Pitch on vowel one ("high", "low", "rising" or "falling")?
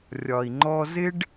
low